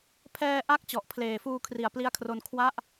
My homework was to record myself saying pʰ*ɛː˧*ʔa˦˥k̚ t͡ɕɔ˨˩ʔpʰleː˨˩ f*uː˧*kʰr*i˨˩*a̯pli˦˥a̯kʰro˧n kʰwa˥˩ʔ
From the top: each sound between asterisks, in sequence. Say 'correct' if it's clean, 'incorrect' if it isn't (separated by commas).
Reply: correct, correct, correct